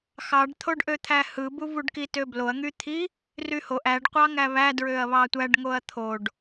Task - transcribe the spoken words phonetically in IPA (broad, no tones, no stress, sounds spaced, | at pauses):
x ɑ ɖ t̪ʰ o ɖ ʔ ø t̪ʰ æ h ɯ b u v u ɖ k i t ø b l o ɐ̯ ŋ y t̪ʰ i | r y h o ʔ æ ɖ qʷ ɑ ŋ æ β æ d ɹ ø ɐ̯ β ɑ tʷ æ ɖ ŋ o ɐ̯ t̪ʰ o ɖ